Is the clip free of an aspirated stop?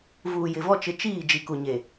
yes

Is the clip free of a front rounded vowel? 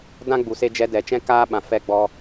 yes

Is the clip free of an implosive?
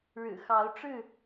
yes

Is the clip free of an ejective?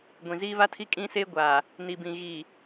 no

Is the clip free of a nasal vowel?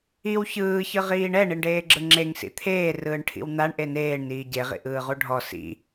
yes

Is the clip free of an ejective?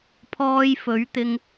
yes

